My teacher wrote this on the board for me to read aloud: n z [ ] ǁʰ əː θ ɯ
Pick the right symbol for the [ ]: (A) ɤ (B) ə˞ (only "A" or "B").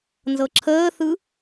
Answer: A